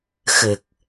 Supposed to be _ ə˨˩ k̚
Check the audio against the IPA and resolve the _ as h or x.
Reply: x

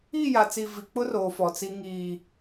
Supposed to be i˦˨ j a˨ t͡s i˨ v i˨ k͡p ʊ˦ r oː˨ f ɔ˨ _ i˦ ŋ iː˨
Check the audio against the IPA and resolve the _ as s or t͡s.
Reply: t͡s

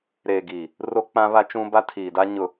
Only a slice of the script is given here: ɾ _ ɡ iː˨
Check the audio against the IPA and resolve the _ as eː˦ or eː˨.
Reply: eː˨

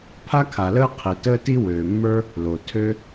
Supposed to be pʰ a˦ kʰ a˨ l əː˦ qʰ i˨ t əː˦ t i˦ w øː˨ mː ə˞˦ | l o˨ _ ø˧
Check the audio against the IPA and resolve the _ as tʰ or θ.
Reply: tʰ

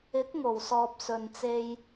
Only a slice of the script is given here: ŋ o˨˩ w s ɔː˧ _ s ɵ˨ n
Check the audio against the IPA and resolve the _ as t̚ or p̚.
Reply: p̚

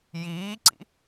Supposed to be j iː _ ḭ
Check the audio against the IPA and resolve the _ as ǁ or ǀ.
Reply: ǀ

